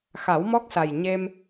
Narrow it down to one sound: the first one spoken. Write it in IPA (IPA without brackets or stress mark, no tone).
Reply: x